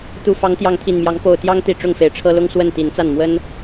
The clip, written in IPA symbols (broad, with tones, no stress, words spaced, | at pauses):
t̪u˨˩fɑ˨˦ŋ t̪jɑ˨˦ŋt̪ʰi˨˩nmjɑ˨˦ŋ po˨˩ʊ̯t̪jɑ˦ŋ t̪i˥˨ ʈ͡ʂʊ˥˨ŋfe˨˦ɪ̯ʈ͡ʂʰɤ˦ lʊ˦ŋswə˥˨n t̪i˨˦nt͡sa˥˨n mwə˦n